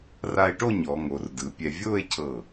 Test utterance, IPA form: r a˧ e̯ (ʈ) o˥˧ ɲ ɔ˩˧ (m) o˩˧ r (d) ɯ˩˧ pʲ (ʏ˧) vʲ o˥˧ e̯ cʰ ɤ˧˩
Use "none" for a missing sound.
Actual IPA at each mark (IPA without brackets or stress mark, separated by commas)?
ʈ, ŋ, d, ɛ˧